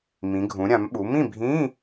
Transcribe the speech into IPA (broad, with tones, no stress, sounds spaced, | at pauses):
m ĩ˩˧ ɡʱ ũ˩˧ ɾʲ ã˩˧ m ɓ u˩˧ m ĩ˥˨ bʱ ĩ˧˥˧